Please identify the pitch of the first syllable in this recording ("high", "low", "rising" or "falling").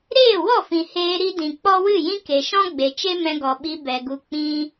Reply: falling